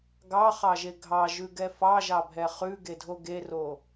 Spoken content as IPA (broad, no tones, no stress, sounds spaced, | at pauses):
ɡ ɑ χ ɑ ʒ e ɡʱ ɑ ʒ ʉ ɡ ɛ f ɑ ʒ ɑ bʱ ɛ χ ʉ ɡ e dʱ o ɡ e r o